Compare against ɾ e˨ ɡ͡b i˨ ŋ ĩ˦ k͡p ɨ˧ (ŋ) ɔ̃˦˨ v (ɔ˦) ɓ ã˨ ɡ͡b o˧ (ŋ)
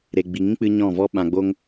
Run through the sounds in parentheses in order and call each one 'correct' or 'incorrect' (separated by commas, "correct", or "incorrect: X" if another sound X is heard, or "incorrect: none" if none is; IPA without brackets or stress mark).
incorrect: ɲ, correct, correct